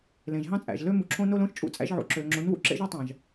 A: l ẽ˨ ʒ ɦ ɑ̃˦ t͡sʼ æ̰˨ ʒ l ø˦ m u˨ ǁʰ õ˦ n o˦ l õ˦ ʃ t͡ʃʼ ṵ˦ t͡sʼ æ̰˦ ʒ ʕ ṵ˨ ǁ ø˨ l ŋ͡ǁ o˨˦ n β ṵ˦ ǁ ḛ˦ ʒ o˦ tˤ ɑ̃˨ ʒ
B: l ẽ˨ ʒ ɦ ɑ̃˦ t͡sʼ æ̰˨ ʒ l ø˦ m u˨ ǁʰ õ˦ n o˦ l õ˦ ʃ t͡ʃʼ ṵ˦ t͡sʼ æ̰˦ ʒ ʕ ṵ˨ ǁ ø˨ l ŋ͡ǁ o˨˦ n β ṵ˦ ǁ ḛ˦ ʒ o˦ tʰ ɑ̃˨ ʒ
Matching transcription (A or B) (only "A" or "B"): A